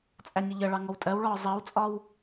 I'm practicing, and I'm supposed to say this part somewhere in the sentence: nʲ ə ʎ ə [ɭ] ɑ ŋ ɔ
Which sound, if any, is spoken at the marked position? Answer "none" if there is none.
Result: ɭ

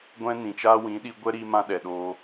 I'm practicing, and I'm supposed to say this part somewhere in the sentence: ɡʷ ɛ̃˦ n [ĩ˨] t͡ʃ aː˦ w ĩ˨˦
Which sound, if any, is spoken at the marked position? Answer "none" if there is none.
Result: ĩ˨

